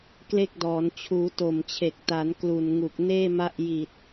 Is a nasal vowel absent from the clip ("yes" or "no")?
yes